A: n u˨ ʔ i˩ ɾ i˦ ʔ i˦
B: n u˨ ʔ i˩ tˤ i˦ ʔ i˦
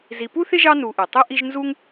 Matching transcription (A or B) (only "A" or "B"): B